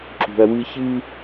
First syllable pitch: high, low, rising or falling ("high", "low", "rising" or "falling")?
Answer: low